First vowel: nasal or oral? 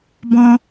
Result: nasal